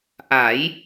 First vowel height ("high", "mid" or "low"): low